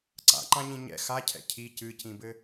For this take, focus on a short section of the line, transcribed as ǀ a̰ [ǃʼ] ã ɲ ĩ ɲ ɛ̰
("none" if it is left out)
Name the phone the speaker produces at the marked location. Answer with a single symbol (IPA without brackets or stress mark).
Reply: ǃ